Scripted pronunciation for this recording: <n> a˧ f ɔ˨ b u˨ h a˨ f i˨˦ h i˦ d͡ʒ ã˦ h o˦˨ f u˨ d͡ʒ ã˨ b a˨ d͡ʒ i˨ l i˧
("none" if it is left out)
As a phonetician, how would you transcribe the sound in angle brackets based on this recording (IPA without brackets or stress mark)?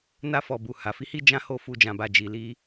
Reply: n